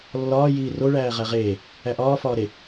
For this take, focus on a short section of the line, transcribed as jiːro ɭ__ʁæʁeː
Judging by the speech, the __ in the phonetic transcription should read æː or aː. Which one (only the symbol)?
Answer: æː